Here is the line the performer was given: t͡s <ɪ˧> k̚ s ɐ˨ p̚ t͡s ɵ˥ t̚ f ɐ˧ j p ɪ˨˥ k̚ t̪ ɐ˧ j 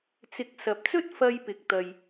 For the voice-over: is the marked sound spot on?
no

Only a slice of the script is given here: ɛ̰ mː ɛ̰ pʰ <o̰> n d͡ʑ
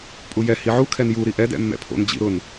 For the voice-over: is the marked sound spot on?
yes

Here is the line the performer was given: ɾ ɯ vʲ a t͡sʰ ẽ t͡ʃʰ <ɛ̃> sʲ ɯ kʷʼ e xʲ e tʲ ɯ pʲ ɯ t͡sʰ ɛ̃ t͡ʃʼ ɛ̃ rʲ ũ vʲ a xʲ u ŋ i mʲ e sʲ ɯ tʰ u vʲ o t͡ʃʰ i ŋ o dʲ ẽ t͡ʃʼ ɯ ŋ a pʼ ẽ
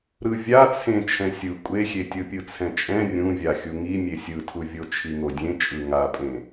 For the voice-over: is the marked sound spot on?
yes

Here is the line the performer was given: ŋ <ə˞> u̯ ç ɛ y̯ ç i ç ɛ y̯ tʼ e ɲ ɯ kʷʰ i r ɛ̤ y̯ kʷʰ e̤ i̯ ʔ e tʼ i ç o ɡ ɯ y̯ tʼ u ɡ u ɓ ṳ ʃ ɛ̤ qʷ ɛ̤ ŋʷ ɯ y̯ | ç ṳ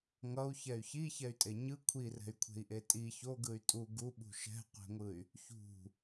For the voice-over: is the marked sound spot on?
no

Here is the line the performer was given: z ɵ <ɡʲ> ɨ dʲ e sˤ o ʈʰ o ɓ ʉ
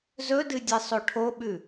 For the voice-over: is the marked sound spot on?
no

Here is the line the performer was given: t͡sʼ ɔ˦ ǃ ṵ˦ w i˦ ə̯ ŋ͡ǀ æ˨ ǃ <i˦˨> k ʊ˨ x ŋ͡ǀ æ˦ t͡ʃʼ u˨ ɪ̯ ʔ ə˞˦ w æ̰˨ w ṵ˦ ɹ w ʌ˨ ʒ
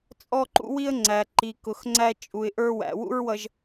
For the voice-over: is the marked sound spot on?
no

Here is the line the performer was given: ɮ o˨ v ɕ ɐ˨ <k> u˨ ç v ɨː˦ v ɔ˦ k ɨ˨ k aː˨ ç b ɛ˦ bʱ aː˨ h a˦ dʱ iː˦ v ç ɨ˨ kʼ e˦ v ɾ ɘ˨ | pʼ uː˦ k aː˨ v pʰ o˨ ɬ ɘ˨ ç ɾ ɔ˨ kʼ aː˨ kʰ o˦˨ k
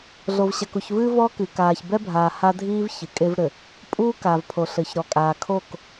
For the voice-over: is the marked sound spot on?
yes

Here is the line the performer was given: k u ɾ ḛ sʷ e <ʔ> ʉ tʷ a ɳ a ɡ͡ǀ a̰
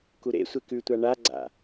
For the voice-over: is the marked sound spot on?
no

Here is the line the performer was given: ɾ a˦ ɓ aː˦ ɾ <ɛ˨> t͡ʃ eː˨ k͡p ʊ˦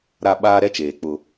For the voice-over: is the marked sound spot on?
no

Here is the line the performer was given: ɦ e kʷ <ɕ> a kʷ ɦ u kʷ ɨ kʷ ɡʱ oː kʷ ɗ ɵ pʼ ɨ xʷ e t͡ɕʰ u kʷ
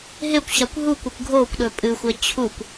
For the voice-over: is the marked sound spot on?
yes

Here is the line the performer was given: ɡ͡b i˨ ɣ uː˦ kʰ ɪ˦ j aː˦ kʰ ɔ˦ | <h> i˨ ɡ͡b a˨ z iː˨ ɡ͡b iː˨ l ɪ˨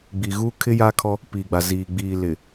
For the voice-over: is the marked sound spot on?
no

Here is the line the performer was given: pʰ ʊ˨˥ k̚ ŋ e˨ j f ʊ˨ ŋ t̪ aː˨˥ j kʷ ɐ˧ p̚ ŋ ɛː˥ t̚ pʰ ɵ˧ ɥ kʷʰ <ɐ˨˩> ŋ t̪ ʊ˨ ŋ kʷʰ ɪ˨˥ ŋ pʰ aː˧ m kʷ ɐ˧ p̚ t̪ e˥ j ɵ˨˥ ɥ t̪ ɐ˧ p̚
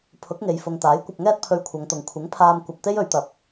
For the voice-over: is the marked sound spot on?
no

